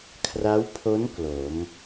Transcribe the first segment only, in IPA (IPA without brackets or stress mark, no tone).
kʰ